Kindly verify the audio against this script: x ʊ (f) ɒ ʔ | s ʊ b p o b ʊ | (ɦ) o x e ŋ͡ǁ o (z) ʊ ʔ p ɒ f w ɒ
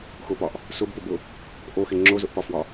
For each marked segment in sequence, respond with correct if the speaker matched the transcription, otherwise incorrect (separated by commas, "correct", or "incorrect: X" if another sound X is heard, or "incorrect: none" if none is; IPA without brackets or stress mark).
incorrect: p, incorrect: ʔ, correct